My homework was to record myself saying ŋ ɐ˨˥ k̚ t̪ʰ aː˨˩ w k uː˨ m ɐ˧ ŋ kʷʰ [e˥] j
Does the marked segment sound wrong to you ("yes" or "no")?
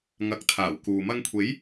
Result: yes